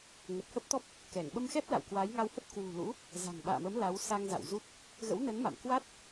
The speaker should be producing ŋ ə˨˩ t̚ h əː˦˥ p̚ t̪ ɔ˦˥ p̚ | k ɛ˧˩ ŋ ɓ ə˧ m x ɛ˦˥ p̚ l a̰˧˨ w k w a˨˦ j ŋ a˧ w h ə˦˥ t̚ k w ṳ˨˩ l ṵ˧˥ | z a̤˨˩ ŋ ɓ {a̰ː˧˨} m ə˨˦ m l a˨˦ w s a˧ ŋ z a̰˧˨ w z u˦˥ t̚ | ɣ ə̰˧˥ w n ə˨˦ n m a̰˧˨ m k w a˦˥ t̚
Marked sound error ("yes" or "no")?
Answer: no